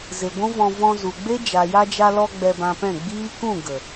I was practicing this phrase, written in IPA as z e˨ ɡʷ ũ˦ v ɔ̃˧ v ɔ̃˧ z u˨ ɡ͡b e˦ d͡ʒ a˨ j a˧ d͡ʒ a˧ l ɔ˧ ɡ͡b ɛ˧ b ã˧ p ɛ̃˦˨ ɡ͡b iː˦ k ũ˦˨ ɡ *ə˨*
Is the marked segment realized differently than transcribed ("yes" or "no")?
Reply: no